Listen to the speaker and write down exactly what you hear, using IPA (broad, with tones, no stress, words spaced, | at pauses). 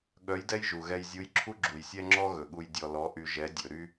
ɠœ˧˥jdɛ˥jʒu˩ ɣɛ˧jzʲu˧˥jǁʰu˥ ɡ͡ǁu˩jsʲɛ˥ŋ͡ǁɔ˥ ɣɵ˩ɠu˧j dʲɔ˧lɔ˧˥ʔy˧ ʒɛ˧˥ dʲɵ˩˧ɾy˥